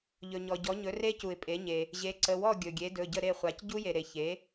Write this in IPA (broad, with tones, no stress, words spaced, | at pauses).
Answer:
ʎɵ˩ɲɔ˩ ɟɔ˩˥ɲɵ˩˥re˦˥cu˩ɪ̯ pʼe˩˥ɲe˩ | ʑe˩˥ǀə˩˧˩wɔ˥˩ ɡʲɵ˩ɡʲe˩˥ dɵ˩˧˩ɟə˥˩ ɾe˥˩χʷa˩˥c ɟu˦˥je˩ɾe˩ çe˩˥